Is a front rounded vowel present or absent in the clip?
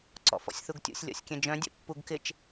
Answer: present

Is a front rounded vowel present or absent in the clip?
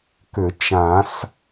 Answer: present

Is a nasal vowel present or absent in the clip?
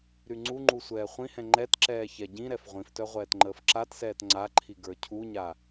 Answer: present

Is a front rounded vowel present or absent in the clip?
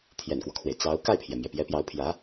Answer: absent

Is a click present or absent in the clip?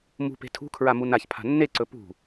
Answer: present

